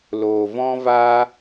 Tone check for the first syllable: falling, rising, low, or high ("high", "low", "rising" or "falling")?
low